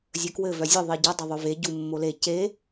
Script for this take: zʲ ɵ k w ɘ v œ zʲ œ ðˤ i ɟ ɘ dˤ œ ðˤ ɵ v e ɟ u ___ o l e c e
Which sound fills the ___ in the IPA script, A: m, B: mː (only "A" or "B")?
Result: B